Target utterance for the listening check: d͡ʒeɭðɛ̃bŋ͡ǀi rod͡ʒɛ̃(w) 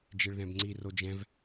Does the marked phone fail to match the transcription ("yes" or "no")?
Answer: yes